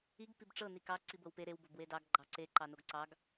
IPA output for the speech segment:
i ɡ p i b ʈ͡ʂ ɤ n i k ɑ ǀ i b ɤ w p e ɾ e w b o b w e d ɑ ɡ ɡ͡ǃ ɑ ǀ e ǃ ɑ n o ɡ ǀ ɑ ɡ

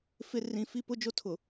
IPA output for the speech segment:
f ɪ˦ r ĩ˨ f i˦ p ʊ˦ d͡ʒ o˦ tʰ ʊ˨

